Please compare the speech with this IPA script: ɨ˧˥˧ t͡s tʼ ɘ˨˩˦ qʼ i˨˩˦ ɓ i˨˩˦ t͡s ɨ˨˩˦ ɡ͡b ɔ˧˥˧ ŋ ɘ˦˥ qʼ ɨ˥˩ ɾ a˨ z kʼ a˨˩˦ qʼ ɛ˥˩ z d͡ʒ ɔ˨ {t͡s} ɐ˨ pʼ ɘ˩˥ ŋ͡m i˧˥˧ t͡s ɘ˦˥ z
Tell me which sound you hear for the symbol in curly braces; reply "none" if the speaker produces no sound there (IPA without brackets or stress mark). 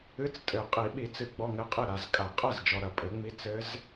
ɾ